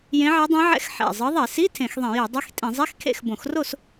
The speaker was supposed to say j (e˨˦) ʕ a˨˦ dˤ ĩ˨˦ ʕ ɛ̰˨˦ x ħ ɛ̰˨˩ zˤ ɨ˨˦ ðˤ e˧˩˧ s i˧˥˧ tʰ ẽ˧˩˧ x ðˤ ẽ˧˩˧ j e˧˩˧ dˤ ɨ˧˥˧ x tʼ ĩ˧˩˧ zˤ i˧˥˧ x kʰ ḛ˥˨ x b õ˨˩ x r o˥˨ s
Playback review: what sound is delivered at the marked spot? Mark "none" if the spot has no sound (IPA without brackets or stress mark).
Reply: ẽ˨˦